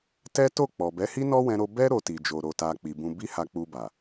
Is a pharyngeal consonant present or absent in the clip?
absent